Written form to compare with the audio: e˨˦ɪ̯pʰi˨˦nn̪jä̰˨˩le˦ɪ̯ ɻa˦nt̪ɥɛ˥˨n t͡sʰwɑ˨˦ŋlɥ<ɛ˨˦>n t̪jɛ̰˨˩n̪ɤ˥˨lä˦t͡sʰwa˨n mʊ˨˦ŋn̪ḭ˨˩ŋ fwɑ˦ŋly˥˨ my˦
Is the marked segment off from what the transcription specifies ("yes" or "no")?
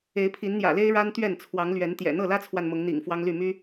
no